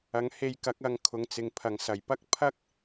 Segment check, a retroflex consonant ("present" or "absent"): absent